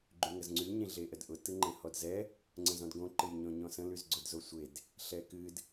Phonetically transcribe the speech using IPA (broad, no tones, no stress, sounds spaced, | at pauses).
ɡ͡ǃ y ŋ ə z ŋ͡ǀ y ɲ ẽ ɮ e ʔ ə d ʔ ʊ t ɯ ŋ͡ǃ ɛ̃ h ɔ d z ɛ | ŋ͡ǀ ə̃ z ɔ̃ d ɡ õ ǃ ɨ j ɲ ɔ̃ ɲ ɔ̃ s ə̃ l y z ɡ͡ǀ ʊ d z o sʷ e d | ɬ ɛ k ɨ d